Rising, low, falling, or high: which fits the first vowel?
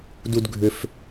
high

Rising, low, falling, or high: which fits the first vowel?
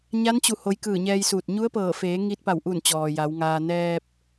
rising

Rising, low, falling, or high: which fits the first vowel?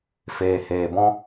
low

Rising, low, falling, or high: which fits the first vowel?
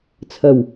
low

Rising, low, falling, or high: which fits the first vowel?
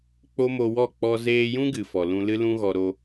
high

